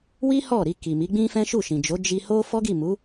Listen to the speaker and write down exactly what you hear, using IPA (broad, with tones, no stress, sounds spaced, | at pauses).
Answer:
w i˦ h ɔ˦˨ ɾ i˧ k i˨ m i˨˦ ɡ͡b ĩ˦ f ɛ̃˦ ʃ u˦˨ ʃ ĩ˨ d͡ʒ o˨˦ d͡ʒ i˧ h o˦ f ɔ˦ ɡ i˦˨ m u˨˦